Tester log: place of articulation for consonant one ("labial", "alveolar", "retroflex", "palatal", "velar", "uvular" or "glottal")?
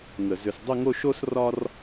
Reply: velar